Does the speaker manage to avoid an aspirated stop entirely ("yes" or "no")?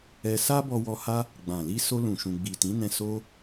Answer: yes